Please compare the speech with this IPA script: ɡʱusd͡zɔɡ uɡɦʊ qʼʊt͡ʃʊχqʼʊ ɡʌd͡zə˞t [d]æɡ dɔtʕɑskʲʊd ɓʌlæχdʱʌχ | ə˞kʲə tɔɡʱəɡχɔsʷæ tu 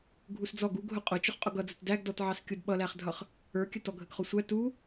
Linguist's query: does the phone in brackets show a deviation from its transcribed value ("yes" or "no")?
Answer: no